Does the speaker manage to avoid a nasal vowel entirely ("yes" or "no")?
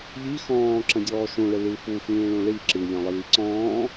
no